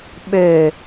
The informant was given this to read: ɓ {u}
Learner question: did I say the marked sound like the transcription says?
no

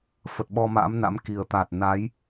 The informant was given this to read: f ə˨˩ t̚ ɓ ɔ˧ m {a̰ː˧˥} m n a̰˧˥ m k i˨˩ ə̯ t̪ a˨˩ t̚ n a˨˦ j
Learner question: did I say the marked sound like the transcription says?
yes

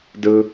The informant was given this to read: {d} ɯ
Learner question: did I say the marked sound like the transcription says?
yes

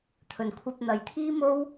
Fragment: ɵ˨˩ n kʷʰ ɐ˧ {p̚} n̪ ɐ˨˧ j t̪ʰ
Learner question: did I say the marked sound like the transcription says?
yes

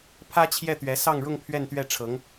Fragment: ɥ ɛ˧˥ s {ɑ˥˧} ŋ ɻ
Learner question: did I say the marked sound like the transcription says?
yes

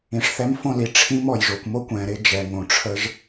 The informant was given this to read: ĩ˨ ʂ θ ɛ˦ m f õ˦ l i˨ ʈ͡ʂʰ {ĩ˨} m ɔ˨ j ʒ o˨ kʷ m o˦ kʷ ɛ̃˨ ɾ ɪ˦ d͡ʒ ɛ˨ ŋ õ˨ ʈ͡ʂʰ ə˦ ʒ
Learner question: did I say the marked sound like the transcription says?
no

